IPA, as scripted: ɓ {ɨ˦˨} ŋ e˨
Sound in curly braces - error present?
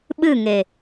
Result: no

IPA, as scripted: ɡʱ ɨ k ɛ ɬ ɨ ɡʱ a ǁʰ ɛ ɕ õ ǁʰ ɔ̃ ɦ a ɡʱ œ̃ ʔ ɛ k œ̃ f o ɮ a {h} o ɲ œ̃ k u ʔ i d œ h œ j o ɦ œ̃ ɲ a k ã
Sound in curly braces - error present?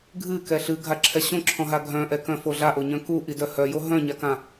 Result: yes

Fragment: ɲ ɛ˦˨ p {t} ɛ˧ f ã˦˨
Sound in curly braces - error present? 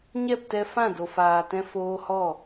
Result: no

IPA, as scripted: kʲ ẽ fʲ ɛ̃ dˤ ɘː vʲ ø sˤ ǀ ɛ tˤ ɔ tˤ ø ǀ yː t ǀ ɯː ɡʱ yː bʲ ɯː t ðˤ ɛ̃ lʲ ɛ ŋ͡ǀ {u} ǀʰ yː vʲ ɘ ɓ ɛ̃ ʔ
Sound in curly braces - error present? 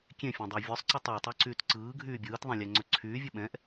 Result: yes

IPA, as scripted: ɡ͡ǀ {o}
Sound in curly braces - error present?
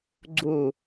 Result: yes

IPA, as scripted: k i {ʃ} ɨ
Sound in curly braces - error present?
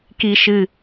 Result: no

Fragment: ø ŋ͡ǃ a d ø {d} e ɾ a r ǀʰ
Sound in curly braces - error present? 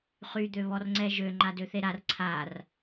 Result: yes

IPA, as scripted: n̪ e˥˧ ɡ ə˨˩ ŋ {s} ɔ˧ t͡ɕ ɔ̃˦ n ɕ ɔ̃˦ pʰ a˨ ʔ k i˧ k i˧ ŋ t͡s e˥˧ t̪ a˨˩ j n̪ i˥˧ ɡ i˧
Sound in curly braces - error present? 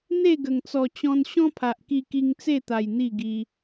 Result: yes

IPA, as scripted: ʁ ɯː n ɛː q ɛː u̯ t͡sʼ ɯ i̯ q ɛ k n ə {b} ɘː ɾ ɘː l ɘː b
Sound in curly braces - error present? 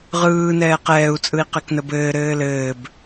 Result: no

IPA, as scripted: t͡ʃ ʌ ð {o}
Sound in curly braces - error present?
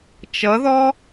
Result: yes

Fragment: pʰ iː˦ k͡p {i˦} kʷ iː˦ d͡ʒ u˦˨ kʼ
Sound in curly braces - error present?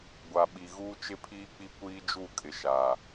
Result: no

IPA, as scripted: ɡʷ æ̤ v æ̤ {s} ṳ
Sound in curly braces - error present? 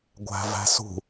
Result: no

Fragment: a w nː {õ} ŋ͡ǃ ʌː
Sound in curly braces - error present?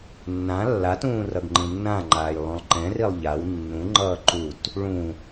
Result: yes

